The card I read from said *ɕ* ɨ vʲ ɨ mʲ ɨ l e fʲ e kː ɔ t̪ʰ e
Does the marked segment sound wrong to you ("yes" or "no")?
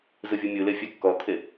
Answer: yes